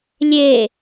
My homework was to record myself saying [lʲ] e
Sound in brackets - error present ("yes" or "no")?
no